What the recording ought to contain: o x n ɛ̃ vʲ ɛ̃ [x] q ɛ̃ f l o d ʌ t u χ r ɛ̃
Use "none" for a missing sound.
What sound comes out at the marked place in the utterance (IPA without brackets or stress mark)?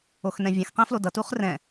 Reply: x